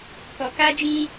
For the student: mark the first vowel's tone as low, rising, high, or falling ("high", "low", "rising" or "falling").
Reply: low